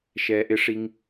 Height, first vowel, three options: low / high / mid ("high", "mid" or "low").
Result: mid